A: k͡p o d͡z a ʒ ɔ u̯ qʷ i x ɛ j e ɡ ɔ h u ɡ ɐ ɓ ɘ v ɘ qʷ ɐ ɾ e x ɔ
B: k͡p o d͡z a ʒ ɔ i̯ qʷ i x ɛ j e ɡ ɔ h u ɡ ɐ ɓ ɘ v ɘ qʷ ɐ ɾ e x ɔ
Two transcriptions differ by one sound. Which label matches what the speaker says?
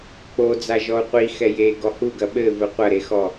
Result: A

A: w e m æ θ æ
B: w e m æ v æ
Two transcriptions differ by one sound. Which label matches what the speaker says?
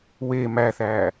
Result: A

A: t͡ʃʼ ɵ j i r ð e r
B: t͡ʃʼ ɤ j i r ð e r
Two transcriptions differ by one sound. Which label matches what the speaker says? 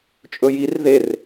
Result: A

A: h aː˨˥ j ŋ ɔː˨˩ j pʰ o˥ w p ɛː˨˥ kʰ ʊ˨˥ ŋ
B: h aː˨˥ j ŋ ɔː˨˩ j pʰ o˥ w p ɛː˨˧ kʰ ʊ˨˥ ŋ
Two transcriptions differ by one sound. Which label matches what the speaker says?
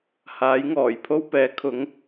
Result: A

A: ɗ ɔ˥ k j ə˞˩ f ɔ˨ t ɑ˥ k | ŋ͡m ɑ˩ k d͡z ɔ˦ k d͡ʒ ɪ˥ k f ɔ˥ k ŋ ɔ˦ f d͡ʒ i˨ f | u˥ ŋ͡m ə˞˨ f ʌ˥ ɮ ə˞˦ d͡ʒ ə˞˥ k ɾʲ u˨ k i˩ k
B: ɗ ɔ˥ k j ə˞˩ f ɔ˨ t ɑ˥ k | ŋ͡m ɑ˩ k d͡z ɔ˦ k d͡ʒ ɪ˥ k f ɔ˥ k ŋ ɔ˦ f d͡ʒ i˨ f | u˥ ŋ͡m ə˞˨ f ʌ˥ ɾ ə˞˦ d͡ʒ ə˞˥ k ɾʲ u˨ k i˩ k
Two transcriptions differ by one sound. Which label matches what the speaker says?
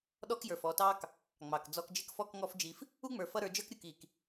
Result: B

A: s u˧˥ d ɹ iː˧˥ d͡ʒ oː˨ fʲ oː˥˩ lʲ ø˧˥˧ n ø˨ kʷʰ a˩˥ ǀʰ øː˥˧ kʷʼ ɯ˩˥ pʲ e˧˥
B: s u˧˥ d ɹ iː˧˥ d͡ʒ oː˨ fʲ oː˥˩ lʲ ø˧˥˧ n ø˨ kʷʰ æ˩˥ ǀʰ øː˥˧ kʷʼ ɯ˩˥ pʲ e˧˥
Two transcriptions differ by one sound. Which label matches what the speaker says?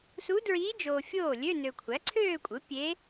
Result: B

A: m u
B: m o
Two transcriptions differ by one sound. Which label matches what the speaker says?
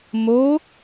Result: B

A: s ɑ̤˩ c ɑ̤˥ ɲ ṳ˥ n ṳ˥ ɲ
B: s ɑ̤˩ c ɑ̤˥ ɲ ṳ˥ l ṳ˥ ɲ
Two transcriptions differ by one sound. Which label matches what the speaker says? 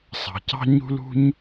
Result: B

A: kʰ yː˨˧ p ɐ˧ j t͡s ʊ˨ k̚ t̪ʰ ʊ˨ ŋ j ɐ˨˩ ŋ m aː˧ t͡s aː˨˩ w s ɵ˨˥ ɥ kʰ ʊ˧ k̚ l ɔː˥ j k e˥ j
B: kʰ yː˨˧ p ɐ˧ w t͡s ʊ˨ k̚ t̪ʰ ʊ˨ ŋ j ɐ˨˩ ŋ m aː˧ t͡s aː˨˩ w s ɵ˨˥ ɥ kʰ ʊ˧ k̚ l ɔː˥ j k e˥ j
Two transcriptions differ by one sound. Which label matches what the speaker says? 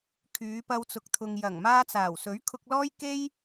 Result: B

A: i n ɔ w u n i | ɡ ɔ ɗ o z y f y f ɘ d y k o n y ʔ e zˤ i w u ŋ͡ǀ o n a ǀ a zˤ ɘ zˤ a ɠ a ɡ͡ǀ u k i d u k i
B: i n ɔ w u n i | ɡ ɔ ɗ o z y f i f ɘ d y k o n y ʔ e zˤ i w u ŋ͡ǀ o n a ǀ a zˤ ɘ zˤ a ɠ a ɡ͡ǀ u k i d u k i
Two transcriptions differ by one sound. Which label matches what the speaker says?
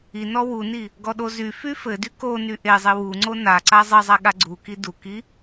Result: A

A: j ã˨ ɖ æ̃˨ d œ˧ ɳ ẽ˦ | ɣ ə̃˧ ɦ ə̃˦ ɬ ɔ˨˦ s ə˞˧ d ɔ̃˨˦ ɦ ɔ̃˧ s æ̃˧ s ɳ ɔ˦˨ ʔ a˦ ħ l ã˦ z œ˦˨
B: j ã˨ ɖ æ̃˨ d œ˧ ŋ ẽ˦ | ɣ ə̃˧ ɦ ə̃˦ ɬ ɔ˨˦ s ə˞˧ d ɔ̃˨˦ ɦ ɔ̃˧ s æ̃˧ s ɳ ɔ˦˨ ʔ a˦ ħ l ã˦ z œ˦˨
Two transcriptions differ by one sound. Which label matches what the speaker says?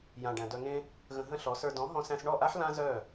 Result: B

